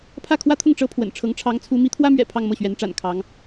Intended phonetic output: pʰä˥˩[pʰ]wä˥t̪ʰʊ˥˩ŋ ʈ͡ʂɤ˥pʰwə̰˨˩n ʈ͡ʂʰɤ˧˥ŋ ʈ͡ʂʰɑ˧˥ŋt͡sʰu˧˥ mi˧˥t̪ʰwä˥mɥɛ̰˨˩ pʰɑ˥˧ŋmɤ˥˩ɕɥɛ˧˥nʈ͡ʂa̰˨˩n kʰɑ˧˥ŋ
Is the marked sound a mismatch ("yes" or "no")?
yes